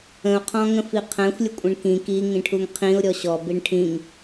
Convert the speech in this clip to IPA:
ə̃ ʊ̯ qʰ ɔ̃ ŋ ə̃ f i qʰ æ̃ xʷ lʲ ə kʷʼ ɛ̃ ɳ k ĩ k i ŋ ĩ ʈʰ u ŋ qʰ ĩ ʊ̯ ɾʲ ɔ ɕ ɔ b i ɳ ʈʰ ĩ ŋ

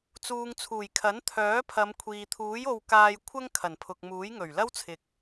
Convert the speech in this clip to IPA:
t͡s uː˨ ŋ t͡sʰ uː˨˩ j kʰ ɐ˨˥ n t̪ʰ œː˨˥ pʰ ɐ˨˧ m kʷʰ iː˨ t̪ʰ uː˨˥ j o˧ w k aː˧ j kʷʰ ɐ˥ ŋ kʰ ɐ˨˩ n pʰ ʊ˨ k̚ m uː˨˥ j ŋ ɵ˨˩ ɥ l ɐ˥ w t͡sʰ ɪ˨ k̚

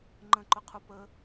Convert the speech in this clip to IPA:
ŋ͡ǃ ə̃ ǃ ʊ qʰ u p ə

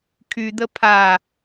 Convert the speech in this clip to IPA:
kʰ y d̪ ə pʰ a

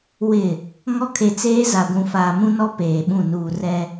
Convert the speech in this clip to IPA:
w ɪ˨ | ŋ ɔ˦ kʰ e˨ t͡s eː˦ z a˨ ɡʷ ũ˨ f aː˨ m ũ˦ n ɔ˦ p eː˨ ɓ ũ˦˨ n uː˨ r ɛ˦

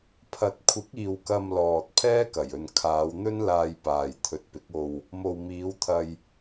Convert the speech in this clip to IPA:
pʰ ɐ˨ t̚ kʷʰ ɪ˨˥ k̚ iː˨ w k ɐ˧ m l ɔː˨ t̚ pʰ ɛː˥ k ɐ˨˩ j ɵ˨ n kʰ aː˨˧ w n̪ ɵ˥ n l aː˧ j p aː˨ j t̪ʰ ɵ˨ t̚ p ɪ˨˥ k̚ o˧ w | m o˨ w m iː˨˧ w t̪ʰ ɐ˧ j

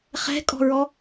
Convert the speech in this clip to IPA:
χ ɛ̤ kʼ ɔ̤ ɹ ɔ

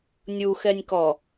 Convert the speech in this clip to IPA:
nʲ u x ɛ nʲ k ɔ

